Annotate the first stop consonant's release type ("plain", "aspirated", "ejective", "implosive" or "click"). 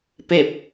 plain